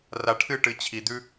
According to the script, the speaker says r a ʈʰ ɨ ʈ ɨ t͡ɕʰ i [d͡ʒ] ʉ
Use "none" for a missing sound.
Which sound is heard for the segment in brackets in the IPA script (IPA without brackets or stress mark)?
d̪